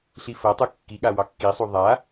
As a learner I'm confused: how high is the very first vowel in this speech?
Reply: high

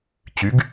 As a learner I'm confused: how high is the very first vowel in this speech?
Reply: high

